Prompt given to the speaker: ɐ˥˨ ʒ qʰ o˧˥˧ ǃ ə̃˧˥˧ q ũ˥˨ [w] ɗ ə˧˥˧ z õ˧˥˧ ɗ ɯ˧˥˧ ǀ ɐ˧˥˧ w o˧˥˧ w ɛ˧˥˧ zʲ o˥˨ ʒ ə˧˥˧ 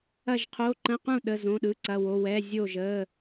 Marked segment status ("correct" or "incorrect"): incorrect